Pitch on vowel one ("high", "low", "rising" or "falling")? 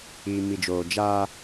low